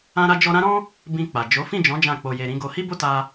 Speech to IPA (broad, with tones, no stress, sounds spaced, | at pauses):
ã˦ ɾ a˦ d͡ʒ ɔ˦ ɾ ã˦ ɾ ɔ̃˦ | b ĩ˧ k͡p a˨ d͡ʒ o˨˦ f ĩ˦˨ d͡ʒ ɔ̃˨˦ d͡ʒ ã˦˨ k͡p o˧ j e˧ ɾ ĩ˦ ɡ o˧ h i˦ b o˦ t a˧